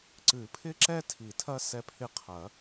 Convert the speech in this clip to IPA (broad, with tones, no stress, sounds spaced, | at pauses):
ǀ ɨ˨˩˦ pʰ ɪ˦ ǁ ɛ˦ tʰ i˨˩˦ tʰ ɐ˦ s ɛ˦ pʰ ɪ˦ qʰ ɐ˨˩˦